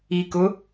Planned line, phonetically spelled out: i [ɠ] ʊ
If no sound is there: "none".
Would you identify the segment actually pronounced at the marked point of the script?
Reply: k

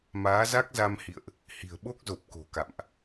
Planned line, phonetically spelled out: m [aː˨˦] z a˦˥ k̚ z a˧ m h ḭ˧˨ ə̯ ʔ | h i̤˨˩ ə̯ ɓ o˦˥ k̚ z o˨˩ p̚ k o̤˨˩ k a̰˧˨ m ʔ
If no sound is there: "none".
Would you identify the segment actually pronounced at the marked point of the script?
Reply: aː˨˦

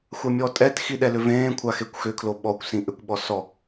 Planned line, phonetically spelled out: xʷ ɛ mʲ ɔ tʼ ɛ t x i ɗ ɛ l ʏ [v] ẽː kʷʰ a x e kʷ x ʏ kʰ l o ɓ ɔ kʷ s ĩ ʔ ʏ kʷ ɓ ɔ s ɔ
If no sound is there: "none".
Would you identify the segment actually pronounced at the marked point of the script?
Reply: v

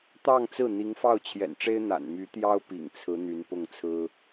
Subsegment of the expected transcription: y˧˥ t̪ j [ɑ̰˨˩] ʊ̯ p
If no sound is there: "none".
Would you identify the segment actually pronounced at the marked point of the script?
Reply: ɑ˥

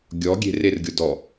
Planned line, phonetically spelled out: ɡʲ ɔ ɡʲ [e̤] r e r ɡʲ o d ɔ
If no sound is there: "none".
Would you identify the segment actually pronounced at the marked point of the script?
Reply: e̤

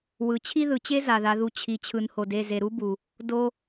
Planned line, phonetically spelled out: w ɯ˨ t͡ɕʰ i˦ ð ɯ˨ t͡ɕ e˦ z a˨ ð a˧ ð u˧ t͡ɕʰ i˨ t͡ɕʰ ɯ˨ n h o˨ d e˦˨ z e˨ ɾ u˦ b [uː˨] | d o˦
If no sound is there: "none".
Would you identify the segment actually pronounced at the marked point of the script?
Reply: u˨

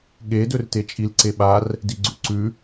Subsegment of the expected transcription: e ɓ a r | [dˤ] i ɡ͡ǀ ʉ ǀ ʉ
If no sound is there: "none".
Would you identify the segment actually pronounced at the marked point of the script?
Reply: d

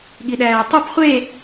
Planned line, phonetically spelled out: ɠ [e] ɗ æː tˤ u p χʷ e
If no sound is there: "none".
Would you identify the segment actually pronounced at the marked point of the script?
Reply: i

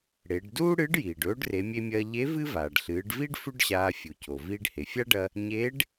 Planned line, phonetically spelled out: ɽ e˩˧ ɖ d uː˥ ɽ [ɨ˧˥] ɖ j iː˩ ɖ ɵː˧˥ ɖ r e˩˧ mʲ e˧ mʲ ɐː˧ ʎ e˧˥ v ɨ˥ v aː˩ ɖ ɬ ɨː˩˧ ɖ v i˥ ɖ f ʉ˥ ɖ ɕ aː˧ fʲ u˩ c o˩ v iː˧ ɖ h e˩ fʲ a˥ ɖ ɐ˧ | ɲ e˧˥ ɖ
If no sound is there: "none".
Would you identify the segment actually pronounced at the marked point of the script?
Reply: ɨ˧˥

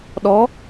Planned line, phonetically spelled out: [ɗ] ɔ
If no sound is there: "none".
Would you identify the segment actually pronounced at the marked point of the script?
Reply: ɗ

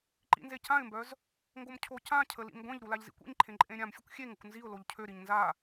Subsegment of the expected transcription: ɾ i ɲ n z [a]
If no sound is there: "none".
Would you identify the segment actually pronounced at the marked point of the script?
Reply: a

